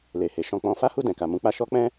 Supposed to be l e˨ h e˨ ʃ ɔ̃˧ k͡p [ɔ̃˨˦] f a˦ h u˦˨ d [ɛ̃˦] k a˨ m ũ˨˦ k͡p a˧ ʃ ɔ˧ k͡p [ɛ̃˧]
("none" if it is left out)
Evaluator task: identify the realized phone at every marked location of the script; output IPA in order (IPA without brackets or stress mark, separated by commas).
ɔ̃˧, ɛ̃˨, ɛ̃˧